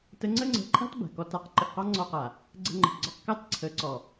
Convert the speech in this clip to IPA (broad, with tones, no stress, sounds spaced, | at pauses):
t ə˧ ŋ͡ǀ ə˦ ŋ͡ǀ ə̤˧ ǃʼ a̤˦ t b a̤˨ k ɔ˧ t a˧ q ǃ ə˨ ʔ q ɑ˦ ŋ͡ǀ ɔ˧ q a˨ | ɡ͡ǀ ə̤˧ ŋ͡ǃ ə̤˨ p ɡ͡ǀ ɒ˧ q k ɑ˦ t ǀʰ ə˨˦ ǀ ɔ˨